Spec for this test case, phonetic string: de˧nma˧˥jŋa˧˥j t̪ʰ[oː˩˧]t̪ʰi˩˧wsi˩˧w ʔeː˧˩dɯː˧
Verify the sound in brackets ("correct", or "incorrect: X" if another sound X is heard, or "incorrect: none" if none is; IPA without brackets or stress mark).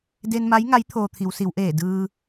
incorrect: oː˧